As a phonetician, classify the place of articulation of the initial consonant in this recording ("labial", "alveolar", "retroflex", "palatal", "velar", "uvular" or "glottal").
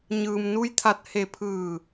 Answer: palatal